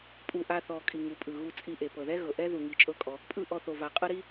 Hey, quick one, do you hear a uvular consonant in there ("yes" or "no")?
yes